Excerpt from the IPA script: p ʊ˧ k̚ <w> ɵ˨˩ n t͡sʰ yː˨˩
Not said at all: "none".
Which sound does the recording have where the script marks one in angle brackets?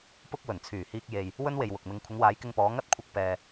w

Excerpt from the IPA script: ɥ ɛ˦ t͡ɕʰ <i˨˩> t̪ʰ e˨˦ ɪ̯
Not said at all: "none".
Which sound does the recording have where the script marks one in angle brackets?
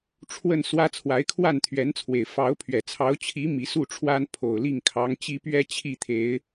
i˥˨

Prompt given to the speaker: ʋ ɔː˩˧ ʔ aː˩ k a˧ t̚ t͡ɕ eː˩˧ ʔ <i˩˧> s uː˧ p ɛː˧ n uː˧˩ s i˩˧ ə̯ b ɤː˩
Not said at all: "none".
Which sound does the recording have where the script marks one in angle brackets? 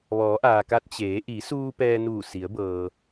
i˩˧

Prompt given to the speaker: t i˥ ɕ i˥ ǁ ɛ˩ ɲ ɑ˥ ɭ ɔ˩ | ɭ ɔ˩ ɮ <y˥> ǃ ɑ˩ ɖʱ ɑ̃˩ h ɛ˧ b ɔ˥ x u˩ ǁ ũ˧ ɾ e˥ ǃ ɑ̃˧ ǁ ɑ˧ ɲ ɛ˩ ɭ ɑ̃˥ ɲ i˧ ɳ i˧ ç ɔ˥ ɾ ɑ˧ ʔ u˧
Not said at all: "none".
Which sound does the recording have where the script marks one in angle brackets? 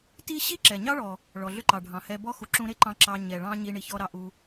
ʏ˥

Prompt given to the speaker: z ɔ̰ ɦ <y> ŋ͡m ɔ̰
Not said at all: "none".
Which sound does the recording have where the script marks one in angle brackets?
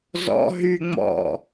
y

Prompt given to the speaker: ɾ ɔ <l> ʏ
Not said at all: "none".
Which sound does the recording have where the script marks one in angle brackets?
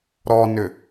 n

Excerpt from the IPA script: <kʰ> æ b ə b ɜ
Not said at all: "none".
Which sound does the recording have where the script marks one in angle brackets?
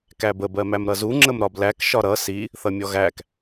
k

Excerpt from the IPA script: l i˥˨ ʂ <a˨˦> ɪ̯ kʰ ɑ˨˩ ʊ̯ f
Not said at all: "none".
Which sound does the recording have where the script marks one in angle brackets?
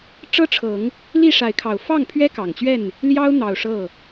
a˨˦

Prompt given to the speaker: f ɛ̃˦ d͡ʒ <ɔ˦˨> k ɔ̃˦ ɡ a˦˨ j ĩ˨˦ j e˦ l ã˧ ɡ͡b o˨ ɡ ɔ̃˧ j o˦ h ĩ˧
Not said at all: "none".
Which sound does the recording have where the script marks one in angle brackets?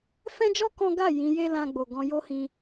ɔ˦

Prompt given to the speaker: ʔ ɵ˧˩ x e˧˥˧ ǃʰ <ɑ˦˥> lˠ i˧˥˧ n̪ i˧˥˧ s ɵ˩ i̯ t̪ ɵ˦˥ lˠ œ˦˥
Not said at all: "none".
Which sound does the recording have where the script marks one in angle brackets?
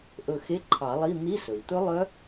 ɑ˨˩˦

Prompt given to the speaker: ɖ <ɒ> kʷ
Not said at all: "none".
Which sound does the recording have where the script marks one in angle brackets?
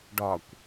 ɒ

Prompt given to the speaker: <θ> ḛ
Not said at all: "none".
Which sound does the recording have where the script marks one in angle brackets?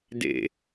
d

